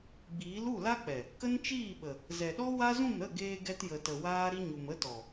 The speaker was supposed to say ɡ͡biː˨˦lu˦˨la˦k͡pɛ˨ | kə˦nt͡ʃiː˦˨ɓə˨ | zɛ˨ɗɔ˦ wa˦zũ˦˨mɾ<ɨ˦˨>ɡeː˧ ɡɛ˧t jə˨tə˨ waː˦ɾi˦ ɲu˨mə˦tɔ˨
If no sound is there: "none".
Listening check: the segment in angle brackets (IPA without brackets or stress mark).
ə˦˨